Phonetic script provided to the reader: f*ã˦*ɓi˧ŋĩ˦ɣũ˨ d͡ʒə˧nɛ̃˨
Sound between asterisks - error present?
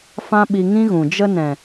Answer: no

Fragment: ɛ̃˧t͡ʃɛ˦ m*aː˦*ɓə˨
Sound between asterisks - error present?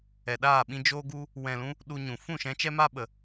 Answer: yes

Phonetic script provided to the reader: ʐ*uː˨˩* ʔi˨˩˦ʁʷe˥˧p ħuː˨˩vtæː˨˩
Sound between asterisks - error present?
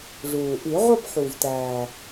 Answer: no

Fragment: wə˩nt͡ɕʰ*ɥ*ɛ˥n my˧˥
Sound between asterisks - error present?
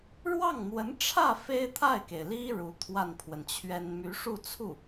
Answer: no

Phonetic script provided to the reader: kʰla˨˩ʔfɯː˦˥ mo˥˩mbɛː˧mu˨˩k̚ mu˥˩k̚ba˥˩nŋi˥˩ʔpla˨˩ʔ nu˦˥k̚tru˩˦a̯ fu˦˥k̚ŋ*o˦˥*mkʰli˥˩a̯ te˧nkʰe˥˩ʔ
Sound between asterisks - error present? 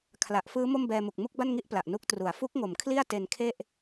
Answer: yes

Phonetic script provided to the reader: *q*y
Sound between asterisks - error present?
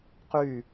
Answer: no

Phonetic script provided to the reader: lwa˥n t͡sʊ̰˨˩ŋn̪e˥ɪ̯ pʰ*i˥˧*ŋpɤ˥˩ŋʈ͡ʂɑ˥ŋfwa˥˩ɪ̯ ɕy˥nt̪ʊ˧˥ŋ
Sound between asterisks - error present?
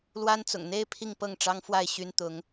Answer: no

